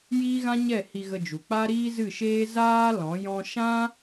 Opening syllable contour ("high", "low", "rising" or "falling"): high